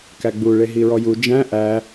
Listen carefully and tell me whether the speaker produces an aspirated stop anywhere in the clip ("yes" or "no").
no